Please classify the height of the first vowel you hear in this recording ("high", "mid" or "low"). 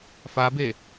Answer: low